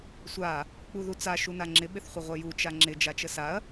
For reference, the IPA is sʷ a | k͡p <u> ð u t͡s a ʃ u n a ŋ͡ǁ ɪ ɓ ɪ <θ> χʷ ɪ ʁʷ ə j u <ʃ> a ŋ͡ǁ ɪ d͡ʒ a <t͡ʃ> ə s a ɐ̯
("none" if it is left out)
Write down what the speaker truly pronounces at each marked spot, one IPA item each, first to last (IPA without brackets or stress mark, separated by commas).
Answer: u, θ, t͡ʃ, t͡ʃ